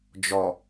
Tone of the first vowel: low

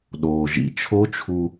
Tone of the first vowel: low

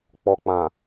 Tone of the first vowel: low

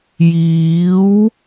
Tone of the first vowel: rising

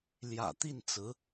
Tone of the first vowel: low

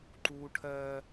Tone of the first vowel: high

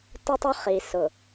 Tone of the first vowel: high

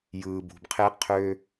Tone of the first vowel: low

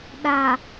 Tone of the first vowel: low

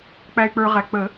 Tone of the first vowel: low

